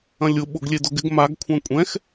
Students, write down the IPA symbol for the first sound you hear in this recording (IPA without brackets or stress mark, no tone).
ɐ̃